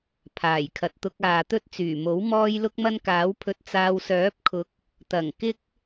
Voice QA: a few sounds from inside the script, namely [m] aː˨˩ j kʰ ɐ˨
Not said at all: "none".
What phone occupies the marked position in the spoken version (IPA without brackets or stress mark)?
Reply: pʰ